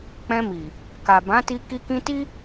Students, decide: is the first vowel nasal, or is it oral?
nasal